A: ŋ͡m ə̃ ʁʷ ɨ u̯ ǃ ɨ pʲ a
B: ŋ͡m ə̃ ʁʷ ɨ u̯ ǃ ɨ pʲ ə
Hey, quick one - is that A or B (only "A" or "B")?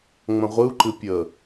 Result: B